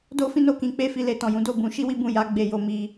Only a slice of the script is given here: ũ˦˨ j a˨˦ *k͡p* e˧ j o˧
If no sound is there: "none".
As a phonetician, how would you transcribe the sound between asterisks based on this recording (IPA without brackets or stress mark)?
ɡ͡b